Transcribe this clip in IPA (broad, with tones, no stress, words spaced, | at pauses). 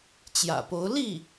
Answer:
t͡ɕjä̰˨˩po˧˥ʊ̯ li˥˩